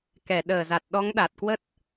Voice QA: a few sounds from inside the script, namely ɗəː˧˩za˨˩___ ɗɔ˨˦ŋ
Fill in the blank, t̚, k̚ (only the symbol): t̚